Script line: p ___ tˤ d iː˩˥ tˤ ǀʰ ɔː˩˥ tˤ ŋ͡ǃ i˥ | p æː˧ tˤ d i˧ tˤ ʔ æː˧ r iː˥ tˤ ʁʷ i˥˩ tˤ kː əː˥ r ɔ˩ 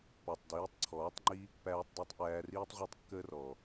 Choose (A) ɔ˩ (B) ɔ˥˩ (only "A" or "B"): A